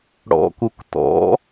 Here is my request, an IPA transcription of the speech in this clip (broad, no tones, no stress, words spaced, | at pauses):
ɽɔ̰kuk tɔ̰